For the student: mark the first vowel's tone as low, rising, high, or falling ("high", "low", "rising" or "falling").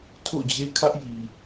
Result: falling